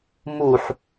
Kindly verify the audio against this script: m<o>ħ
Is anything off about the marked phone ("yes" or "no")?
yes